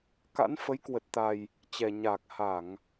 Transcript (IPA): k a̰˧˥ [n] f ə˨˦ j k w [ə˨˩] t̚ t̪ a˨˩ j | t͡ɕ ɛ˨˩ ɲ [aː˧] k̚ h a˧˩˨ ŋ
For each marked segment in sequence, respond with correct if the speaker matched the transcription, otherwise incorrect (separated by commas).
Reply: correct, correct, incorrect